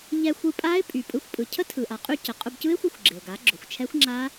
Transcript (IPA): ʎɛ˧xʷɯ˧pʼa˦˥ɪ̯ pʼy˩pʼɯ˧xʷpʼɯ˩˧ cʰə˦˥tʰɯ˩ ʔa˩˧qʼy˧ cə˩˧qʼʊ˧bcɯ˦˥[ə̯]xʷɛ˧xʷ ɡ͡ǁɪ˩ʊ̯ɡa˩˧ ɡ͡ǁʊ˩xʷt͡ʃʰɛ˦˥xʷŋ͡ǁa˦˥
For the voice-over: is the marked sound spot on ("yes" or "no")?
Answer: no